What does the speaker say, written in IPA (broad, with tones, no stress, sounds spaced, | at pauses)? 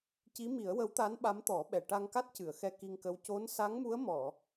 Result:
c i˧˥ m i˨˩˦ ə̯ w ə˧˥ w t̪ a˧˥ n ɓ a˧˥ m t̪ ɔ˨˩˦ ɓ ɛ˨˩ ʈ a˧ ŋ k a˦˥ t̚ c ɨ˨˩˨ ə̯ x ɛ˧ k i˧ ŋ k ə˧˥ w c o˧˥ n s a˧˥ ŋ m u˧˥ ə̯ m ɔ˨˩˨